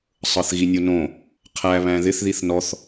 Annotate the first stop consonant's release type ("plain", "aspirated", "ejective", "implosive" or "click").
aspirated